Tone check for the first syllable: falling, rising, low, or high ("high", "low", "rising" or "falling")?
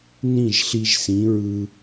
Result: falling